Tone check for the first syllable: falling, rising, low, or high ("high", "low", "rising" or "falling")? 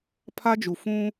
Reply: high